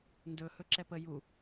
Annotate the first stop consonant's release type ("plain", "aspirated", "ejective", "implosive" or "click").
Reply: plain